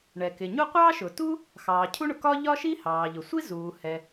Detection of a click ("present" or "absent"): absent